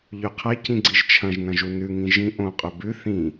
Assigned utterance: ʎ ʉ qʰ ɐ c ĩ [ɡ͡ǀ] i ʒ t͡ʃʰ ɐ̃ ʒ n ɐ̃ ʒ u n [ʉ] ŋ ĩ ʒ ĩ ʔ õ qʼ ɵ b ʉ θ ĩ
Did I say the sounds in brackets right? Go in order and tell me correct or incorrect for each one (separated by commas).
correct, correct